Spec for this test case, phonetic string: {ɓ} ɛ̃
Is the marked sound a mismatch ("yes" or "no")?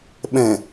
no